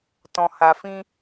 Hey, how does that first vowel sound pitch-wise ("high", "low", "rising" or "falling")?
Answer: low